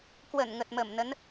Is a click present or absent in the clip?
absent